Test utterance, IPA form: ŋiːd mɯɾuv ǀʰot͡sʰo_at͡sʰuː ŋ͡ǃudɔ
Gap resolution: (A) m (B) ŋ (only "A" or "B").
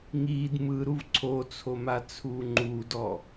A